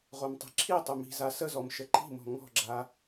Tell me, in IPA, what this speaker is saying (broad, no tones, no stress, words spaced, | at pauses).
ʁomtˤi̤ǁʰitˤʏ mi̤za səzɔm ʃəǃi̤mɔ̤ ŋɔ̤ɡ͡ǁa